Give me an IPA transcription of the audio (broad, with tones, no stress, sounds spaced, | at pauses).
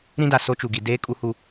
ɾ ĩ˦ d a˨ s o˦ t͡ʃ u˨ ɡ i˨ d eː˦ kʼ u˦ h u˦